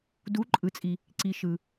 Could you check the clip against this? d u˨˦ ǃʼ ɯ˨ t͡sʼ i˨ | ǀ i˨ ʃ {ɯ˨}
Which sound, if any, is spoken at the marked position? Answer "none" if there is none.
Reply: ɯ˨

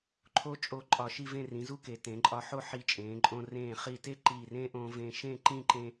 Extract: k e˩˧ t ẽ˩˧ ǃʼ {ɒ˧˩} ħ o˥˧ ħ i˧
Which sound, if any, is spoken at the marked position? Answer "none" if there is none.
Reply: ɒ˧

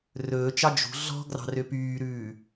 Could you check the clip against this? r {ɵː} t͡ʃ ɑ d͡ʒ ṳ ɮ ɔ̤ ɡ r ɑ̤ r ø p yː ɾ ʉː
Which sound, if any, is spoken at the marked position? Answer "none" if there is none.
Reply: ɵː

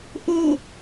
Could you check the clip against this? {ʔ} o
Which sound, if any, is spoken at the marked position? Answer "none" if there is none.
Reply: ʔ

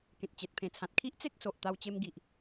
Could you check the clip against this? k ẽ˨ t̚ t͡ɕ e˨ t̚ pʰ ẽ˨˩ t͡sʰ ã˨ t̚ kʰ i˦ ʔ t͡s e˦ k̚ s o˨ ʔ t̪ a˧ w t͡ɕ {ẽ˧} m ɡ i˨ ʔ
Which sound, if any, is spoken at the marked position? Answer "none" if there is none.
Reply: e˧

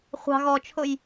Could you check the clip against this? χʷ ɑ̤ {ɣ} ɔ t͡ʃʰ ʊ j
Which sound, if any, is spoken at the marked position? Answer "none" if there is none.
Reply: ɣ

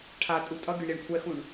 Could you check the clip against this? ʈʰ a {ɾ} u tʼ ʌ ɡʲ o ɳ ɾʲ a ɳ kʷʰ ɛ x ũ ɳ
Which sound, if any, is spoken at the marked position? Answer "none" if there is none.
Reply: tʼ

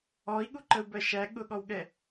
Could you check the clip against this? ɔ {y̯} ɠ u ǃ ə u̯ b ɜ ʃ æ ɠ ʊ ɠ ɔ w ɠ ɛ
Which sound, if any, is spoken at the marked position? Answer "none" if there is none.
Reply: i̯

